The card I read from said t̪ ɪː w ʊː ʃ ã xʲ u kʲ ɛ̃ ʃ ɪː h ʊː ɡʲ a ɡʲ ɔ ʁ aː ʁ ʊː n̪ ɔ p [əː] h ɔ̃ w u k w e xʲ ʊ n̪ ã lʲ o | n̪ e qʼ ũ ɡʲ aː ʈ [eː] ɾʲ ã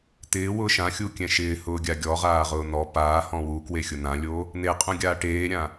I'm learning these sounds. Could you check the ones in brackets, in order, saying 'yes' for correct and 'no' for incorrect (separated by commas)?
no, yes